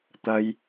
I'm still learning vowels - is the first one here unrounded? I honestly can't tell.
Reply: yes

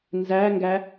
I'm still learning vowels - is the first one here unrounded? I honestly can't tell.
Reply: yes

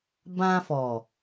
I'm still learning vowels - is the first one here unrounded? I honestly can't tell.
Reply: yes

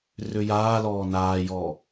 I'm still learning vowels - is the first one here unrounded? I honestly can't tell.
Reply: no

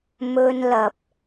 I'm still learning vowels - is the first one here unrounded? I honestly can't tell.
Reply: no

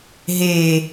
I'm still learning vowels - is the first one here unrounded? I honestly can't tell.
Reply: yes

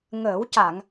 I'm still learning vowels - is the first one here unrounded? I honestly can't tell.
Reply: yes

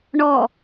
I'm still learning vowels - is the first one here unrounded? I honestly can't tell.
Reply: no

